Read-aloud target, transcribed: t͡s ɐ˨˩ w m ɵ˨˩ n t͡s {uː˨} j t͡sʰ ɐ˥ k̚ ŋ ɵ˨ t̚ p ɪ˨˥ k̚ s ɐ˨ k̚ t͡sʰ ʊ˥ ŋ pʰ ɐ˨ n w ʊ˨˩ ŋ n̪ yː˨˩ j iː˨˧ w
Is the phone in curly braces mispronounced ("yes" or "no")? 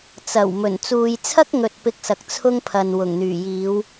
no